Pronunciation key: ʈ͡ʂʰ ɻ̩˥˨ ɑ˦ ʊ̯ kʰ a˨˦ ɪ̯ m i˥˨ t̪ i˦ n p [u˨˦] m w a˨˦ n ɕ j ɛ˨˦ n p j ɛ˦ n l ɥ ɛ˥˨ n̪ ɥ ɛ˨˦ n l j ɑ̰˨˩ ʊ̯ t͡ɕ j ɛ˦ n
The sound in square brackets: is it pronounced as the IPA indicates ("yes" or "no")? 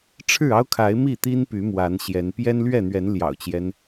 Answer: no